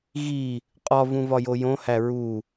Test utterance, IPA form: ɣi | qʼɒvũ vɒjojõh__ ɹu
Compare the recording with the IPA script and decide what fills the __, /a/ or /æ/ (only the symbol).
æ